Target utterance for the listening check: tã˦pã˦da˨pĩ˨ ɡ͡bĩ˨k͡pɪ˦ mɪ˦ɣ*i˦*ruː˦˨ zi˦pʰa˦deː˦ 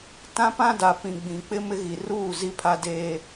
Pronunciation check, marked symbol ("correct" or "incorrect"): incorrect